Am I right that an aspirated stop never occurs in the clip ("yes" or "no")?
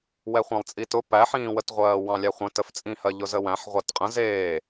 yes